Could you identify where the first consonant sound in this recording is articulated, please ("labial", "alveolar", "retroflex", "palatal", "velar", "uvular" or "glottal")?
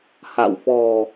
glottal